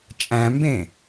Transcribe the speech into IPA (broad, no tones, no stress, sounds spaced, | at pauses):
t͡ʃʼ æ̃ m b ẽ